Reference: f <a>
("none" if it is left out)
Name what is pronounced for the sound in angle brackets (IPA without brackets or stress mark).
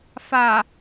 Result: a